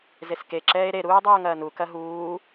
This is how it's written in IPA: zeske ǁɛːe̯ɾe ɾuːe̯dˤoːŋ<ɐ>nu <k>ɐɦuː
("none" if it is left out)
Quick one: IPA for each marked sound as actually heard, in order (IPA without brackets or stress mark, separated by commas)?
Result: ɐː, k